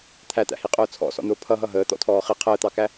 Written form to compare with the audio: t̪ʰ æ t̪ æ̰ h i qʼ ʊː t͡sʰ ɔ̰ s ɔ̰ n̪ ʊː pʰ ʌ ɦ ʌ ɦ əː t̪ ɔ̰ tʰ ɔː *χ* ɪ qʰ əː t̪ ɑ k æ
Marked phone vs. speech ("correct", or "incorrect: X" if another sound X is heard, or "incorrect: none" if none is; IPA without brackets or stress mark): correct